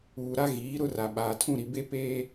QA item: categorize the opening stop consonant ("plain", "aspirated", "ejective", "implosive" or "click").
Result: implosive